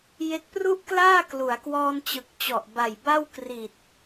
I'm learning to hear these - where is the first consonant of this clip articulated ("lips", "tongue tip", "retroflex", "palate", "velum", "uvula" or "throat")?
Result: palate